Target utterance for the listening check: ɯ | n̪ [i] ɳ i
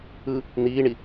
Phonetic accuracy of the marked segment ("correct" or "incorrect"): incorrect